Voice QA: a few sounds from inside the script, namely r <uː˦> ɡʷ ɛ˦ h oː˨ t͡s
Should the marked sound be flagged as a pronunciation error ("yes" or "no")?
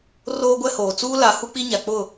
yes